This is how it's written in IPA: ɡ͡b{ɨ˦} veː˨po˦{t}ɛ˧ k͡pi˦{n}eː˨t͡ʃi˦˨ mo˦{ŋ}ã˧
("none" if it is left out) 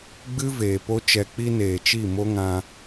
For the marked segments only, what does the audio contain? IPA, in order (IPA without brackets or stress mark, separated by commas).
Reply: ɨ˦, t͡ʃ, n, ŋ